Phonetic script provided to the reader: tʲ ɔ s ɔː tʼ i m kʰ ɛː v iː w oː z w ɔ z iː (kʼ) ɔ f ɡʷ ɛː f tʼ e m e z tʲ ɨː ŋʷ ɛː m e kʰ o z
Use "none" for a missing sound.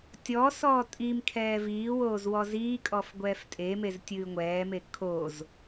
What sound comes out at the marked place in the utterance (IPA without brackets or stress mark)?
kʼ